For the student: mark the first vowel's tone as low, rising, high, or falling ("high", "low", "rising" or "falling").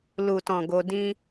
low